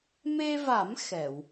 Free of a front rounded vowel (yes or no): yes